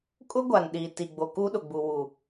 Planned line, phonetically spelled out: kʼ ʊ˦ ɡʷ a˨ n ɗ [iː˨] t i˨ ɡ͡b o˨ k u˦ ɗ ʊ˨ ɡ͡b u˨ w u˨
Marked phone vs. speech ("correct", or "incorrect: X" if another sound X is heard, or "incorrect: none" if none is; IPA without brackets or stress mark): correct